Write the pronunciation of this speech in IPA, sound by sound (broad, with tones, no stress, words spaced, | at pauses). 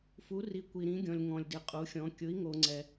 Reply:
fu˧˥ri˧˥ kʷi˧ɾĩ˧˥ɡʲɔ̃˧lʲ ŋɔ̃˧lʲdɪ˧qʼu˧˥xʲɔ̃˧˥ kʲʊ˧˥i̯ŋo˧ŋ͡ǀɛ˧